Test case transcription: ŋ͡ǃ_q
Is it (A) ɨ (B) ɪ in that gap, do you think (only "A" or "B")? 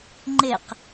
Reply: B